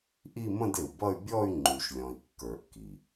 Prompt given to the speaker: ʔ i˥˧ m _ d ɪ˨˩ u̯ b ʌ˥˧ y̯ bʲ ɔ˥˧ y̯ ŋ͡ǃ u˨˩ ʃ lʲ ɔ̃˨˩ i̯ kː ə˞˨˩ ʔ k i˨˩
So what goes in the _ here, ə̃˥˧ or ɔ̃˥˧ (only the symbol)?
ə̃˥˧